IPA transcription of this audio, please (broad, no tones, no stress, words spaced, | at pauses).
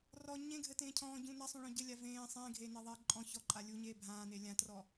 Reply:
rɔ ɲẽɡʱɘtẽː cʰɔ̃ːɟũ nasˤũɭɔ̃ ɟɘlʲa vẽː sˤẽːɡʱeːneðˤeː ǃʼɔ̃ çɔǃʼa lʲuɲeː bʱãːne lʲãtrɔ